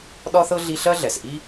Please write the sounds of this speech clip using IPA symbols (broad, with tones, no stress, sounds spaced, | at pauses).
ɗ ɒ˥ θ ɤ˥ ɮ i˥ ɬ ɜ˥ ɮ ɛ˩ s ʔ i˥